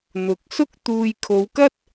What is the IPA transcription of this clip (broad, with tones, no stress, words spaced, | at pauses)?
n̪ʊ˨˥k̚sʊ˥k̚ t̪uː˨j kʰo˨˧wkɐ˥t̚